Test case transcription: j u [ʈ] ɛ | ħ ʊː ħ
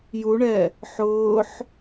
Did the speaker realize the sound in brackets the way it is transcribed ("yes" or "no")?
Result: no